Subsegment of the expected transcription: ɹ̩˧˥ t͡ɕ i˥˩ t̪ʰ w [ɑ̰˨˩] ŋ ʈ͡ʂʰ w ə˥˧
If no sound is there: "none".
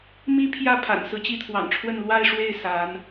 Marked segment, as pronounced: ɑ̰˨˩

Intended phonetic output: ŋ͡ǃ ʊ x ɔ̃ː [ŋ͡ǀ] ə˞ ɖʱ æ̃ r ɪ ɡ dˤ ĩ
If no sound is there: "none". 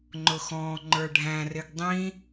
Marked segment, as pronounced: ŋ͡ǃ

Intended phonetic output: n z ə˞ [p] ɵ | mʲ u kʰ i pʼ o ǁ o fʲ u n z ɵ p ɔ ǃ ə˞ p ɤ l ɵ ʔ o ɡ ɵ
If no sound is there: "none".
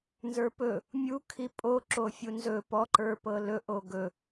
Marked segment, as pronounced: p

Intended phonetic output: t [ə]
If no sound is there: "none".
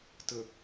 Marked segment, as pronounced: ə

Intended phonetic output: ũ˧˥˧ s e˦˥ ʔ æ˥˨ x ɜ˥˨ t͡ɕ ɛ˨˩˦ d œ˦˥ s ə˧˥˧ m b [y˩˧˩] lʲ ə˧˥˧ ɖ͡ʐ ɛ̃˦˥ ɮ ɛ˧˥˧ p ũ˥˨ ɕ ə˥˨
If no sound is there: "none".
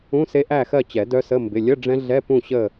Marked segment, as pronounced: ɪ˩˧˩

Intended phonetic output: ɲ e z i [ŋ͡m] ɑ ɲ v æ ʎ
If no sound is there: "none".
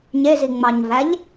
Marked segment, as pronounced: ŋ͡m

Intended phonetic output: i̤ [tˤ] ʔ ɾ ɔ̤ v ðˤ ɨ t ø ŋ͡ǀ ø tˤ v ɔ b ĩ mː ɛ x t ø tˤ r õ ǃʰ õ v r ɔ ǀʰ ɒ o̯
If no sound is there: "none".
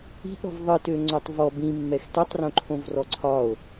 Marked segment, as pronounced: none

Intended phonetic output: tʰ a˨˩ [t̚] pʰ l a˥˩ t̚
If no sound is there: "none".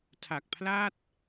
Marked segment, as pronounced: k̚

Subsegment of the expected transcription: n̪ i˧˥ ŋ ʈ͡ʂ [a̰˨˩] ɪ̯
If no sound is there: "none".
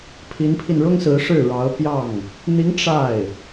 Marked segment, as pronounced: a˥˩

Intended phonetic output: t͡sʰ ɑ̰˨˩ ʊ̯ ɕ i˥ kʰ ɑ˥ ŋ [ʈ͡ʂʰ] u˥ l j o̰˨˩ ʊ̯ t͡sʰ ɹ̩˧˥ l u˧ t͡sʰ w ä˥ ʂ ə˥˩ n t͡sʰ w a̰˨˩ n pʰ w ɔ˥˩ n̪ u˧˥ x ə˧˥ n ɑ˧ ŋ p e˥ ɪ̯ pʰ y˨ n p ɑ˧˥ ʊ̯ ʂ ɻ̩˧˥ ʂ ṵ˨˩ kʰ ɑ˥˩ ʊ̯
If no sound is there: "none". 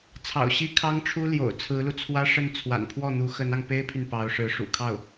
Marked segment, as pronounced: ʈ͡ʂʰ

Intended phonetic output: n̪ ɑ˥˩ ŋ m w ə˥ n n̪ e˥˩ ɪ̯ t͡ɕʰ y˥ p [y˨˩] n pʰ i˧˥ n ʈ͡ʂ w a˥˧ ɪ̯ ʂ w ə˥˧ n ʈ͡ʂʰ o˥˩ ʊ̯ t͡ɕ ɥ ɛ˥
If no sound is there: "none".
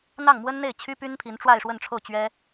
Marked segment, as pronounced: y˥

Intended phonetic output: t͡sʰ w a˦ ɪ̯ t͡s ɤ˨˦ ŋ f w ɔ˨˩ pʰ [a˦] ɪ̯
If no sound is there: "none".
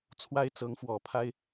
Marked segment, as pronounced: a˦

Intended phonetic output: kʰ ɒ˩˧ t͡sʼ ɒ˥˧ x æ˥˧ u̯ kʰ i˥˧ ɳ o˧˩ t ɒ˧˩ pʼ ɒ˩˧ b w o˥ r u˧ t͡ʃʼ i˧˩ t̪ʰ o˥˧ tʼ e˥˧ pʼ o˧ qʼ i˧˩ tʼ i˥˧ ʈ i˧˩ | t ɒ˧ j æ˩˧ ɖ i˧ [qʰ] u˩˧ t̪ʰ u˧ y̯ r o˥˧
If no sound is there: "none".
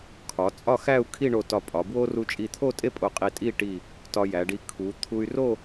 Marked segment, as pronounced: kʰ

